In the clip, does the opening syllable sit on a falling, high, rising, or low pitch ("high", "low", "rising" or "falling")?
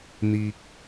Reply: low